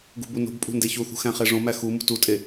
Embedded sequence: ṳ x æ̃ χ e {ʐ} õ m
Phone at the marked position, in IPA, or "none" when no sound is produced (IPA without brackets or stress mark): ʐ